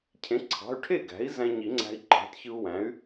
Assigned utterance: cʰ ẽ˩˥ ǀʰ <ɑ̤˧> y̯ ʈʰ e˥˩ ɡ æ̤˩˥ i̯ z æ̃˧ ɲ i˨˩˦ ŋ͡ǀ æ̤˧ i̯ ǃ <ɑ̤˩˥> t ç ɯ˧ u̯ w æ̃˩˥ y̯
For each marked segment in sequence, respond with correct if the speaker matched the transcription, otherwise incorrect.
incorrect: ɑ̤˩˧˩, correct

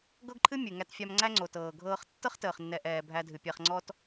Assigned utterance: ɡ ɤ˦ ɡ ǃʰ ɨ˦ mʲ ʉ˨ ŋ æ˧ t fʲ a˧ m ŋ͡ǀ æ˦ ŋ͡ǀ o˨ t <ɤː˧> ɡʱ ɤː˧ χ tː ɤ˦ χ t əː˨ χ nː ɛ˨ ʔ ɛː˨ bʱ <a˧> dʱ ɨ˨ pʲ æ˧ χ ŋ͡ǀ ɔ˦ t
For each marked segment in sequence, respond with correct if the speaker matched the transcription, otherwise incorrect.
incorrect: ɤː˨, incorrect: æ˧

